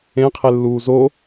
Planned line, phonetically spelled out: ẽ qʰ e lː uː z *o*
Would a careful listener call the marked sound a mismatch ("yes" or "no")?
no